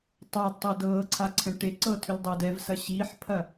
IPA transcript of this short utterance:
tˤadtˤɤ dɤːǀʰaǀʰɛ̃ ʈeǀɤtʰʏldˤɤːd ɛvsɐ ɕiħpʰɐ

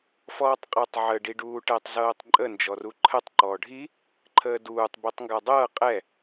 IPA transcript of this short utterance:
fɔːtˤqʼɛtˤʕə ɖiɖuːʈɛtˤ zɤːtˤǃʼə nd͡ʒɔruǃʰətˤ ǃɔːɖʱi | ǃʰəːduːtˤ bitˤŋɡadˤɤː qʼɛ

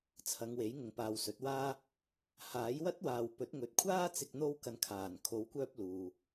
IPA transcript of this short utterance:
t͡sʰɐ˨˧ŋwe˨˥j ŋʊ˨˧ŋpaː˨wsɵ˨˥t̚waː˥ | haː˨˥jwɐ˥t̚waː˨w pɵ˨˥t̚ŋɵ˨t̚kʷʰaː˥t͡sɪ˧k̚ n̪o˧wkɐ˨n kʰaː˨˩nkʰo˨˧wkʷœː˧p̚ luː˨

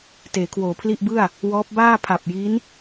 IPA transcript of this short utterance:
teː˩˦kʰwoː˩˦pʰli˥˩ʔbɯ˥˩a̯ | wɔː˦˥p̚ baː˥˩pʰa˨˩p̚ ji˦˥n

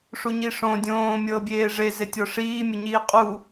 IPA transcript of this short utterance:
ʂuɲiʂõ dʲõːmʲɤː bʲeːʐe zetʲɔʂiːmʲə ɲiːqʼu

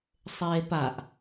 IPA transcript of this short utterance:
sˤeːpaʔ

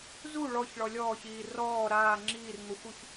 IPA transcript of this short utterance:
zu ɭɔçɭɔ lʲɔːçiː rɔː ɾaː ŋ͡ǁiːrŋoxʷuç

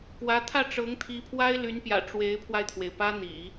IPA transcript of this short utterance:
kwä˧˥t̪ʰä˥˩ʈ͡ʂɤ˧˥ŋ t̪ʰi˧˥pʰwa˥ɪ̯ly˧˥npjä̰˨˩ ʈ͡ʂwe˧˥ɪ̯pʰwa˧ɪ̯t̪ʰwe˩ɪ̯pä˥ n̪ḭ˨˩˦

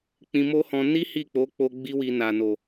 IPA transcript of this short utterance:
k͡pĩ˧mo˦hɔ̃˧ ni˦ hi˦˨k͡po˨˦k͡po˧ ɡ͡bi˦wi˧ na˨no˨

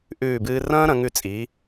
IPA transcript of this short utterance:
ʔʉː˧˩bɨː˧rɐ̃ː˥ ɾɐ̃˩˧ŋʉ˧˩t͡sʼi˩˧

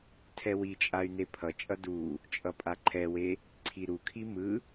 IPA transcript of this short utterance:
tʰɛwit͡ʃʼay̯ nepʰʌt͡ʃʼʌ du | t͡ʃʼʌpʼaǃʰɛwe | ǀʰiɾukʰi mɯ

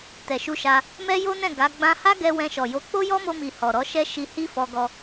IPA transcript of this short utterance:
tɛ˨ʃu˧ʃa˧ | mɛ˦jo˦nɛ̃˦˨ ɡa˨˦ɡ͡bã˦ ha˦ɡɛ˧ wɛ̃˧ʃɔ˨jo˧ k͡po˦jɔ˦mo˧mi˨ hɔ˨ɾɔ˨˦ʃɛ˦ ʃi˧hi˦ fɔ˧ɡɔ˧

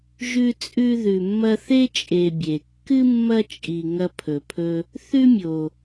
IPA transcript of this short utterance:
ʒʉ˦t͡sʼʉ˦ ðʉ˨mːɐ˦θe˥ t͡ʃʼe˨bʲe˩ kːɨ˥mːɐ˦t͡ʃʼi˨ ŋɐ˦pʰɵ˨pʰɵ˦ | θʉ˥mʲo˨

